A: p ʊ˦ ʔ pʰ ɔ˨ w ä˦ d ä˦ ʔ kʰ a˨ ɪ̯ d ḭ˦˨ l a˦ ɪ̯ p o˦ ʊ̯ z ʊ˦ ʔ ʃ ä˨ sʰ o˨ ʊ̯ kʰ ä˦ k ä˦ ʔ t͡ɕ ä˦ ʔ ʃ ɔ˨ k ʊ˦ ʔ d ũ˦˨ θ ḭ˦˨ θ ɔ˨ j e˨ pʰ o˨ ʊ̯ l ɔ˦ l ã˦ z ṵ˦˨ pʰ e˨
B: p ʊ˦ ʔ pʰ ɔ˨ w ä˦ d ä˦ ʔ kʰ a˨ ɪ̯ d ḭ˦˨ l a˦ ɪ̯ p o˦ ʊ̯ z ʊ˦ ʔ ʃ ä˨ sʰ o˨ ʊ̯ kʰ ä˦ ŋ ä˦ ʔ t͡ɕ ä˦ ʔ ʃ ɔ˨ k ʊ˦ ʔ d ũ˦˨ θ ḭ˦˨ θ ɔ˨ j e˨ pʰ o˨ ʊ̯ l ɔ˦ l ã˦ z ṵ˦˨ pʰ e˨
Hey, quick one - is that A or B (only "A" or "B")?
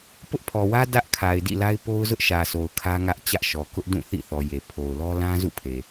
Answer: B